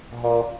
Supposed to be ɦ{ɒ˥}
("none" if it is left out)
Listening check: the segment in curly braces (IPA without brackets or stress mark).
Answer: ɒ˥